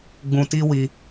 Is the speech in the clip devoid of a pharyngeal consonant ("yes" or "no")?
yes